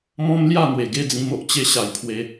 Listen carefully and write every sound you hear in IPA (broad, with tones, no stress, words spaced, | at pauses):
mɔ̃˦mlja˥˧n̪we˨˩ ɡe˥˧d͡zĩ˧mo˨ʔ t͡ɕe˧ɕa˨˩j pʰwe˧